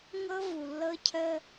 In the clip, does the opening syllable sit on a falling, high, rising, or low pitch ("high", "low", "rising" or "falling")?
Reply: high